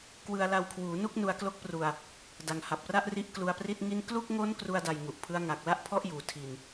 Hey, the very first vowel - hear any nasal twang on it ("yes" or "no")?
no